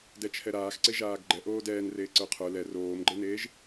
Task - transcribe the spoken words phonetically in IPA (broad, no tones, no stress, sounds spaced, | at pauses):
d ɛ t͡ʃʰ ɛ ɾ aː x ǀ e ʒ aː ɡ ɡ͡ǃ ɛ ʔ oː d ɛː n r eː ǀ ə˞ qʰ ə˞ l ɛ r oː m ɡ͡ǃ e n eː ʒ